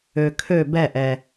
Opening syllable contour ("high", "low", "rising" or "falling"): low